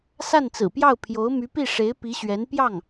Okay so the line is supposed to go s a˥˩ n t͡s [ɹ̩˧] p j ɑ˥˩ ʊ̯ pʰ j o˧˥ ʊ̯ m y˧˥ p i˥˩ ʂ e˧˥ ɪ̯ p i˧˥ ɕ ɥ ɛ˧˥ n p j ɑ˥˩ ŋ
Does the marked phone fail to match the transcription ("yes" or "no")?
yes